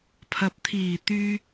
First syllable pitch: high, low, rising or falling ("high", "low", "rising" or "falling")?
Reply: rising